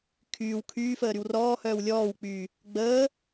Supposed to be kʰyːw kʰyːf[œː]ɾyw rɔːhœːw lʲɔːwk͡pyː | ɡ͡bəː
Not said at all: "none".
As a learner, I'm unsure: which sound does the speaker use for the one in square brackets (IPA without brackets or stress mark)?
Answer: əː